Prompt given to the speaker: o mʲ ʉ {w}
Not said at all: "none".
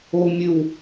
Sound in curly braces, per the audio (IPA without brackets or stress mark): w